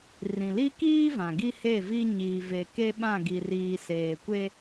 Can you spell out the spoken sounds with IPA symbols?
r ĩ˨ l i˦ k iː˦ v ã˨ ɡ i˦ h e˦˨ v i˦ ɲ iː˨ v e˨ k e˦ ɓ ã˦˨ ɡ i˨ r iː˨ s eː˨ kʷ e˦

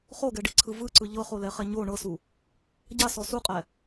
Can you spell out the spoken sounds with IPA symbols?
χ o ɡ ɛ ɖ i ǀʰ ɯ v ɯ ǀ ɯ ʎ ɤ χ o l ɛ χ ɛ ɲ o ɳ ɤ s u | ɟ a s ɔ s u qʼ ɛ

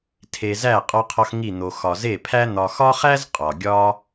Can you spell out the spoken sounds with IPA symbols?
tʰ e˧ z æ˦˨ qʼ ɒ˦ qʰ ɒ˦ x ŋ i˦˨ n̪ o˧ x ɒ˧ z e˦˨ pʰ æ˦ n̪ ɒ˧ x ɒ˦ χ æ˦ z qʼ ɒ˨ ɡʲ ɒ˦

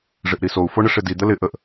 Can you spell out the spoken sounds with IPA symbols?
ʐ ɪ ʔ ɾ i s o u̯ f o ɳ ɪ ʂ ɪ d i d̪ ə l ɪ ʔ ə ʔ

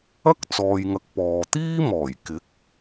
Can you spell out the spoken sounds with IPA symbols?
ɐ˥ k̚ t͡s ɔː˨ j ŋ ɐ˨˥ k̚ p ɔː˨ t̪ iː˥ m ɔː˨˩ j k ɪ˨˥ k̚

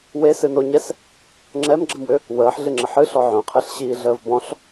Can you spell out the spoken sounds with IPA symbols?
w e s ɨ n o ɲ ɛ s | ŋ͡ǁ ɛ m ɡ͡ǁ ə m w ʏ | w əː ħ ɮ ɨ ŋ͡ǁ ə ħ ɨ ɬ ɔ ʕ œ̃ qʰ ɛ ɬ ɕ iː ɮ əː v b ɔ̃ ɬ

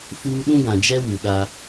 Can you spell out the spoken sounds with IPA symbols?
f uː˦ ɗ ũ˦ ɡ ã˨ d͡ʒ ɛ˦ w u˨ ɗ a˦

